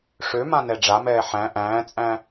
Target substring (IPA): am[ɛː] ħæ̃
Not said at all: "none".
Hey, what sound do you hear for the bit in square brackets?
ɛː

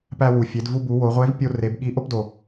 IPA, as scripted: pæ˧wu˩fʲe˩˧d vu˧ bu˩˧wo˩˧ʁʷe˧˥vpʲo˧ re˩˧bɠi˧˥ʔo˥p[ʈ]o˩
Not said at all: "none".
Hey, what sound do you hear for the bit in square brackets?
d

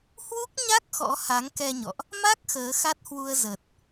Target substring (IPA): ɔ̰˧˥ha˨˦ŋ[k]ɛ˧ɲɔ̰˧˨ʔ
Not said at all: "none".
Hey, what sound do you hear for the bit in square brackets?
k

